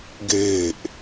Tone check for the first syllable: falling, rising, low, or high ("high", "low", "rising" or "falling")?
falling